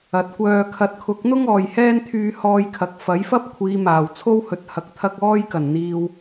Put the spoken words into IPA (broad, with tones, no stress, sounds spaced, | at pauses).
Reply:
ɐ˨ t̚ kʷ œː˧ kʰ ɐ˧ t̚ kʰ ʊ˨˥ k̚ n̪ ʊ˥ ŋ ɔː˨ j h ɛː˥ n t̪ʰ yː˧ h ɔː˧ j kʰ ɐ˨ k̚ f ɐ˨˥ j f ɐ˥ p̚ kʷʰ iː˨˧ m aː˨˩ w t͡sʰ o˥ w h ɵ˨ t̚ h ɐ˨ k̚ t̪ʰ ɐ˧ k̚ ɔː˥ j k ɐ˨˩ n n̪ iː˨ w